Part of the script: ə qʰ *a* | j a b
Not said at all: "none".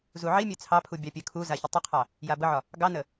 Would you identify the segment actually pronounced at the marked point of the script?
ɑ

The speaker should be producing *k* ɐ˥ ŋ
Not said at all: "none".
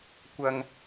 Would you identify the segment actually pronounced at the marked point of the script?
kʷ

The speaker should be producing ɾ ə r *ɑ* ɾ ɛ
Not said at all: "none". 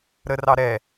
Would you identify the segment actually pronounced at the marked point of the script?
ɑ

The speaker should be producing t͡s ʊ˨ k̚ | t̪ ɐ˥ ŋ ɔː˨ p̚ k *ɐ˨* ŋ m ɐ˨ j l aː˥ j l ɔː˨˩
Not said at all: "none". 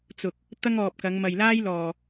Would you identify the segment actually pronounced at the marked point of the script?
ɐ˨˧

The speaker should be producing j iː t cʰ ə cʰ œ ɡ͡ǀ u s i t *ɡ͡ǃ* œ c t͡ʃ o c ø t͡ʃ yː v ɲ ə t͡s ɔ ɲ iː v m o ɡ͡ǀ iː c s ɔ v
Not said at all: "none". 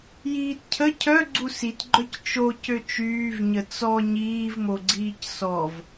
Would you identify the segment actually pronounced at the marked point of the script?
ɡ͡ǃ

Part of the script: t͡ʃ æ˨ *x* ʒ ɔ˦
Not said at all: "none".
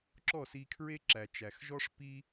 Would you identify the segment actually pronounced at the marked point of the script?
x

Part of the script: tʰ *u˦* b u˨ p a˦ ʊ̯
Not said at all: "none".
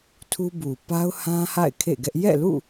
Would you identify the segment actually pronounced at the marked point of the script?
u˦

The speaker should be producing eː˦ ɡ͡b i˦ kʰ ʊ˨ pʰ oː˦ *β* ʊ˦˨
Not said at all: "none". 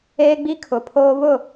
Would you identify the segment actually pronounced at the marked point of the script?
β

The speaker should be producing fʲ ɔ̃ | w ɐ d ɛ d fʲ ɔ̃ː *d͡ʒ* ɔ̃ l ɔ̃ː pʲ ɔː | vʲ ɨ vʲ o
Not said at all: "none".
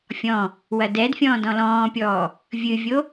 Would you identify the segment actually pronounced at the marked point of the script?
d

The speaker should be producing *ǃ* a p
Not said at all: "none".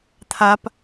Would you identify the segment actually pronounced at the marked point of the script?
t̪ʰ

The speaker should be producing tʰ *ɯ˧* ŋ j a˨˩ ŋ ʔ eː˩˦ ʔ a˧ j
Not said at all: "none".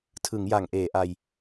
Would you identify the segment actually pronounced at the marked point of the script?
ɯ˩˦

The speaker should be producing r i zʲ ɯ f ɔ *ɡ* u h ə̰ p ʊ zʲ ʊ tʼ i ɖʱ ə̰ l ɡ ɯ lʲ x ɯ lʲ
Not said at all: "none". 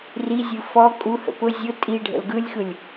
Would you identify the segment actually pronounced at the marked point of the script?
kʼ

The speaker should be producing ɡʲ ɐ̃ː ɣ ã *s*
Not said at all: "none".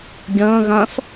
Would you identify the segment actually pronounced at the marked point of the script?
s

